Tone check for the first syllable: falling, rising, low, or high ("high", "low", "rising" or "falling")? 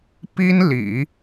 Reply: high